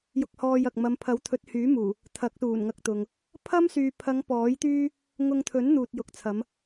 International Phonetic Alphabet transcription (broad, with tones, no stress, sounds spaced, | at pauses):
j ʊ˧ k̚ h ɔː˧ j ɐ˨ k̚ m ɐ˨˧ m pʰ ɐ˨˥ w t̪ʰ ɵ˨˥ t̚ h yː˨˥ m uː˨˩ | t̪ʰ ɐ˨˥ k̚ s uː˨˩ n ŋ ɐ˧ k̚ t̪ ʊ˨ ŋ | pʰ ɐ˥ m s yː˨ pʰ ɐ˨˧ ŋ p ɔː˨˥ j t̪ yː˥ | ŋ ʊ˧ ŋ t̪ʰ ɵ˨˥ n n̪ uː˨ t̚ j ʊ˨ k̚ t͡sʰ ɐ˨˧ m